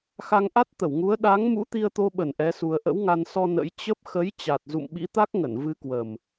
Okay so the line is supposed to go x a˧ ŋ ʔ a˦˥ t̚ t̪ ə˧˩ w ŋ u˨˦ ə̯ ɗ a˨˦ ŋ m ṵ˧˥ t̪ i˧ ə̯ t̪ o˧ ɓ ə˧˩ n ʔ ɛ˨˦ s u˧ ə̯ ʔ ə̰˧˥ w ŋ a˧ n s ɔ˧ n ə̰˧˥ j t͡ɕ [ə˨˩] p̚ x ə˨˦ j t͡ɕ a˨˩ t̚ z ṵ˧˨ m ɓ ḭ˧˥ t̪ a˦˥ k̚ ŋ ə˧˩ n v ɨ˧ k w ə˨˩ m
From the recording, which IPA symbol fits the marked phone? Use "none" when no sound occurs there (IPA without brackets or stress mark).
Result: ə˦˥